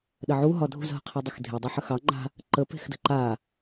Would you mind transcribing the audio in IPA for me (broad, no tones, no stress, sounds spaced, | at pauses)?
ɗ ə ʕ u ɦ ɒ dʱ ṳ z ɦ ə̤ qʰ ɑ dˤ u x dʱ e dˤ e ħ ə x ɑ ŋ͡ǃ a̤ | ǃ ə p e̤ x d ə̤ ǃ a